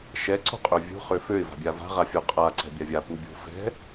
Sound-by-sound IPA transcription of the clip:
ʃ ɛ ǀ o̤ qʼ ø vʲ ṳ χ ø f ø ɪ̯ v a̤ bʲ a v a̤ ʁ a fʲ o qʼ a ǀ ɛ̤ bʲ a vʲ a p u bʲ o̤ f ɛ̤

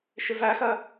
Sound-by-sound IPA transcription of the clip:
ʃ ɪ v æ x ɜ

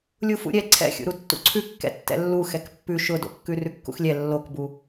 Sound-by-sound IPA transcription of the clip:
lʲ u f ṵ ɾʲ ɛ ǀʰ ɛ̰ xʲ ṵ ɾ u tː ṵ ǀʰ ʉ kː ɛ̰ tː ɛ̰ lː u x ɛ k pː ʉ ʃ ʊ d o̰ kː ʉ r ʉ kː ṵ x lʲ ɛ lː o k b u

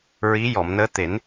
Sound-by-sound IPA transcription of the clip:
ɹ i˧˥ j ɔ˨˩˨ m n əː˧˥ t̪ e˨˩˦ n

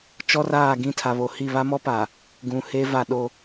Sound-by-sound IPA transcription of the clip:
t͡ʃ ɔ˦ r aː˦˨ ɡ ĩ˦ tʰ a˨ β o˨ h i˦˨ β a˦ m ɔ˦ p a˨ | ɡ ũ˨ h e˦ v a˦ ɗ o˦

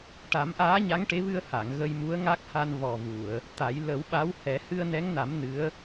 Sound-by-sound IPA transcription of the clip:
ʈ a˨˩˦ m ʔ aː˧˥ ɲ a˧˥ ŋ ʈ e˧˥ v ɨ˧ ə̯ h a˨˩˨ ŋ ɣ ə˧ j m u˧˥ ə̯ ŋ a˦˥ k̚ h a˧ n v ɔ˨˩ v u˨˩˨ ə̯ | t̪ a˨˩˦ j l ə˨˩˦ w ɓ a˧˥ w h ɛ˨˩˦ h ɨ˧ ə̯ n ɛ˧˥ ŋ n a˨˩˦ m n ɨ˧˥ ə̯

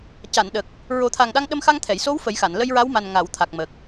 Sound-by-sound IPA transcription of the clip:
c a˨˩˨ n ɗ ə˨˩ k̚ | ɹ o˨˩˦ t̪ʰ a˨˩ ŋ ɗ a˧ ŋ ɗ ə˧ m x a˧ ŋ t̪ʰ ɛ˨˩˨ j s o˧˥ w f ə˨˩˦ j x a˨˩˨ n l ə˧ j ɹ a˧˥ w m a˨˩ n ŋ a˨˩˨ w t̪ʰ a˨˩ k̚ m ə˨˩ k̚

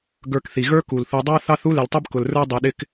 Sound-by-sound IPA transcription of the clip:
ɡ ə˞˨ k θ i˩ ɣ ə˞˦ k u˩ l θ u˨ dˤ ɑ˥ θ ɑ˦ θ u˥ l ɪ˨ l tˤ ʌ˥ b k ʊ˨ l r ə˞˦ dˤ i˨ ɗ ɪ˦ k

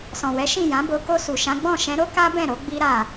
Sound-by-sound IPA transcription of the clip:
s ɔ̃˨ w ɛ˨˦ ʃ ĩ˦˨ j ã˨˦ b o˧ k o˧ s u˨ ʃ ã˨˦ ɡ͡b ɔ̃˦˨ ʃ ɛ̃˨˦ ɾ o˦ k a˦ b ɛ̃˦˨ ɾ o˨˦ ɡ͡b i˦ ɾ a˦˨

